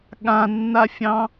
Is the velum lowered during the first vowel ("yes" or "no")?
yes